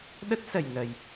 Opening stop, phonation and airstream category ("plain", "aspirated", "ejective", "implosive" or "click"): implosive